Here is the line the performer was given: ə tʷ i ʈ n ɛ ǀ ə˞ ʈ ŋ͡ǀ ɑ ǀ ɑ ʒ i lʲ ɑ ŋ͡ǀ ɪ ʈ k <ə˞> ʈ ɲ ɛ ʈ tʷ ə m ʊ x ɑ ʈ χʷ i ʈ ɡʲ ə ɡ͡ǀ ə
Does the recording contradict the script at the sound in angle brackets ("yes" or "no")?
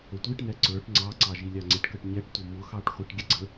yes